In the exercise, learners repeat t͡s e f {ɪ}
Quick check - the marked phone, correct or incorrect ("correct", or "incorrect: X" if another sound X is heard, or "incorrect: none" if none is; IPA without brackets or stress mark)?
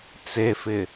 correct